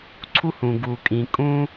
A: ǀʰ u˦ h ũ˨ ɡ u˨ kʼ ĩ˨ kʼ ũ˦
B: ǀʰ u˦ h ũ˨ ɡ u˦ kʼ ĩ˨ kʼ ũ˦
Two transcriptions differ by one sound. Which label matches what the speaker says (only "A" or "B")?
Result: A